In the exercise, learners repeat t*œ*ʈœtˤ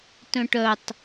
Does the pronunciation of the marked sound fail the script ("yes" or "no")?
yes